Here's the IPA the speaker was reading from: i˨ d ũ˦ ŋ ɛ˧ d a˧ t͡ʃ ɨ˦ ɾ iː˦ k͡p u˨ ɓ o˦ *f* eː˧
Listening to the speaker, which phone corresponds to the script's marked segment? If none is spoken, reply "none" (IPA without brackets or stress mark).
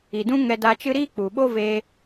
v